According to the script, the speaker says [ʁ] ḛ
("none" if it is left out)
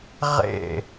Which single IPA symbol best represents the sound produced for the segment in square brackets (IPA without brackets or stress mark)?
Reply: ʁ